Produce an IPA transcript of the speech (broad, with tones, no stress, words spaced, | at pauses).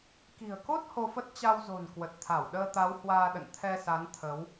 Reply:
ki̤˨˩ə̯ko˦˥t̚ ho˧fə˦˥t̚ t͡ɕa˧wzo̤˨˩n kwə˨˩t̚t̪ʰa˧˩w ɗəː˧t̪a˨˦w hwaː˧ɗə̰˧˨n t̪ʰɛ˧sa˨˦nt̪ʰə˨˦w